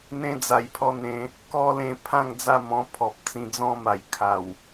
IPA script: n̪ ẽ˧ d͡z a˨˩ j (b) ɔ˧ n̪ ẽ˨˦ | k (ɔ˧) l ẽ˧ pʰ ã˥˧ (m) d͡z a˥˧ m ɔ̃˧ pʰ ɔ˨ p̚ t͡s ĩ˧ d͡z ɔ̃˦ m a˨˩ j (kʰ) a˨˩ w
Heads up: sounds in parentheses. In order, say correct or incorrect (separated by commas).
incorrect, incorrect, incorrect, correct